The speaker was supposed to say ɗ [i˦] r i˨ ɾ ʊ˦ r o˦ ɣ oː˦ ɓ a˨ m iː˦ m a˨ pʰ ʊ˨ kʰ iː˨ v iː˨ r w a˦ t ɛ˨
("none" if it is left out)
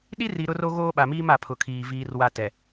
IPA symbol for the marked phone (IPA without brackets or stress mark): i˦